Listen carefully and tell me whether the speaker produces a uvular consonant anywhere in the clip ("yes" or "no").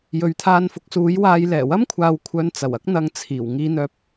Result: no